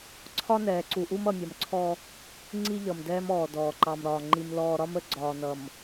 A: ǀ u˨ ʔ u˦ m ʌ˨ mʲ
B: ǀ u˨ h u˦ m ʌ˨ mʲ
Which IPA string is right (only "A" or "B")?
A